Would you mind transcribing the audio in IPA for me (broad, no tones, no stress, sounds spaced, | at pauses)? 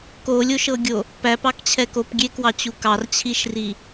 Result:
k o lʲ o ʃ ɤ ɡʲ o | p æ p ɑ k t͡ɕʰ ɛ k o p ɡʲ e k w ɑ t͡ɕ u k ɑ r t͡ɕʰ i ʃ r i